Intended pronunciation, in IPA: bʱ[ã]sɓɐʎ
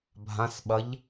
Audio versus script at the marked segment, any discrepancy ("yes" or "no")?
no